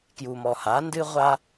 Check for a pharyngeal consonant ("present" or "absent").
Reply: absent